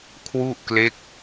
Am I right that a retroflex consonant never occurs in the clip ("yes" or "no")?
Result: yes